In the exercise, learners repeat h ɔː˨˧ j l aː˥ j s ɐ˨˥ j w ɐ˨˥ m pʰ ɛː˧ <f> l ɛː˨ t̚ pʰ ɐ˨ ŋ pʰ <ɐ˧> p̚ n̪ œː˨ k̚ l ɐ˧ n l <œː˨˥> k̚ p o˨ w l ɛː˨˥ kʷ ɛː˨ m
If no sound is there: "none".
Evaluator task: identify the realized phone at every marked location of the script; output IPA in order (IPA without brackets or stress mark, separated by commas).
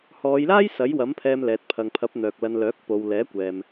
m, ɐ˨˥, œː˨˥